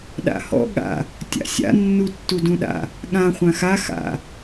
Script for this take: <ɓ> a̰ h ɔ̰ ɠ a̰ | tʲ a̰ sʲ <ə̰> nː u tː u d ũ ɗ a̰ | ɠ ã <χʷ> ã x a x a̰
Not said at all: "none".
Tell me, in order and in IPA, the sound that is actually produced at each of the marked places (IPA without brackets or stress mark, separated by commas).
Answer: ɗ, a̰, χʷ